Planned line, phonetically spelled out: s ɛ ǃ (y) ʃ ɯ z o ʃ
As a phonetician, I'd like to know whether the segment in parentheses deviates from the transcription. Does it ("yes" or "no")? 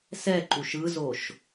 yes